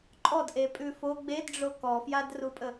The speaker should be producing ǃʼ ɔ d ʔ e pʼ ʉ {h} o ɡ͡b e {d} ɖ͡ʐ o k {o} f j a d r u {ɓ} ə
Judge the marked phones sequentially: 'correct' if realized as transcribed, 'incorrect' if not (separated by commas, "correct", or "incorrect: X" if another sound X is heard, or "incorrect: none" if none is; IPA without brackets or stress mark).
incorrect: f, correct, incorrect: ɔ, incorrect: pʼ